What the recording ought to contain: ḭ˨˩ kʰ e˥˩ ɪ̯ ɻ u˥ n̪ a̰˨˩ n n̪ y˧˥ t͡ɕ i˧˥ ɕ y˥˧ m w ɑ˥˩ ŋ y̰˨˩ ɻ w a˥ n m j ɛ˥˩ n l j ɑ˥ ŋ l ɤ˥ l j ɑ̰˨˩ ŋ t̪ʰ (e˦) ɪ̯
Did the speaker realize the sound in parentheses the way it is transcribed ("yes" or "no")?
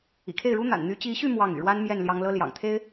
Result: no